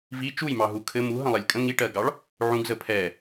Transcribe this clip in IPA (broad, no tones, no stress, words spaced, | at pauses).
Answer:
vi t͡ʃujmɑɦu kʰɘ muɦə̃lˠɛlʲ kʼə̃ ŋiʈɜɡɑɭ | ʕũɡzə pʰɛ